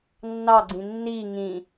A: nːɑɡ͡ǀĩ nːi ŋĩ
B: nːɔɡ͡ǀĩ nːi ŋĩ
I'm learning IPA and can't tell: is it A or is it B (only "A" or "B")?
A